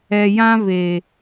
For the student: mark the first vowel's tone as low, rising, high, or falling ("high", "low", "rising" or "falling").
low